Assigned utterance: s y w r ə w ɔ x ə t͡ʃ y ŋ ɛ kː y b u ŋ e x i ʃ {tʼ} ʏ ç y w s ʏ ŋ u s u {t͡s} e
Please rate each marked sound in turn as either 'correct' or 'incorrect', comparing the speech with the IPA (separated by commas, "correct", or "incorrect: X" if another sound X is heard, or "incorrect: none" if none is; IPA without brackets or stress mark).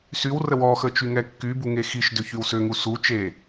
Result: incorrect: d, incorrect: t͡ʃ